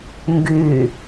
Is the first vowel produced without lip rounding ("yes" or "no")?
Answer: no